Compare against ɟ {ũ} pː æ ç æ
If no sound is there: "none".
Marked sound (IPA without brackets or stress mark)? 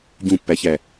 ũ